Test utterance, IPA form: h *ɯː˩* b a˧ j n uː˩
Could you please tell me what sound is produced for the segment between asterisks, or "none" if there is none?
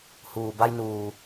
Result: uː˩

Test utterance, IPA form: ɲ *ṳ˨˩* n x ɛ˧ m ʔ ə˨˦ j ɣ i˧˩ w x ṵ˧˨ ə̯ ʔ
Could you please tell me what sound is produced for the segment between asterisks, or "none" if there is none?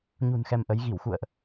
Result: ṳ˨˩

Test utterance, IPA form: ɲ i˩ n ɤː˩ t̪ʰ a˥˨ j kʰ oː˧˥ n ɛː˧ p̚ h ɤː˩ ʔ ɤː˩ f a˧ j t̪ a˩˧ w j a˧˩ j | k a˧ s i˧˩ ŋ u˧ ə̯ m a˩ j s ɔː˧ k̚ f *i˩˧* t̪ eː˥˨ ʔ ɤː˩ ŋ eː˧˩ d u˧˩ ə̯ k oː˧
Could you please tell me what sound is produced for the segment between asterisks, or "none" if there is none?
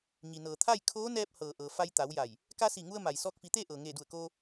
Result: i˩˧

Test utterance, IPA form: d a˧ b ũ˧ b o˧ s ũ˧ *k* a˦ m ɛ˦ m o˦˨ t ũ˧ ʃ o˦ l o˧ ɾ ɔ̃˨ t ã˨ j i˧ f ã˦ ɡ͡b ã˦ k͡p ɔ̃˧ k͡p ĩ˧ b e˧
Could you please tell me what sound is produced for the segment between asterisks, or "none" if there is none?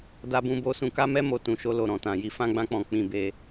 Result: k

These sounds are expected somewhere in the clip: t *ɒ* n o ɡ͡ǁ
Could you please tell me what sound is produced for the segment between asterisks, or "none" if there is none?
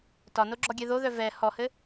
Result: ɒ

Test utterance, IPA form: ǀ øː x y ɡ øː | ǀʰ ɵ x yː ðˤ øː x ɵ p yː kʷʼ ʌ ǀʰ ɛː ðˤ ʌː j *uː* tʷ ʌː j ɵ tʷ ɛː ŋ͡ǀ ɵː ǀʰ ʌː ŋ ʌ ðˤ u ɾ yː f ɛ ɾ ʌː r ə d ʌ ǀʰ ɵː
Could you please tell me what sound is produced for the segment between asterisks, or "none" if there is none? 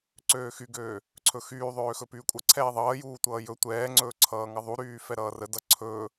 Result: uː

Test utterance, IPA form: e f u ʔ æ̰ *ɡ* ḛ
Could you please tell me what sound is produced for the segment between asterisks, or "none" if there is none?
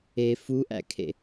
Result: kʰ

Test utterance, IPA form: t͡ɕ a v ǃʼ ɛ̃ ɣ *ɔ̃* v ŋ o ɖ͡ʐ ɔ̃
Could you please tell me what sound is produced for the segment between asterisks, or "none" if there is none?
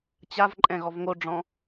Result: ɔ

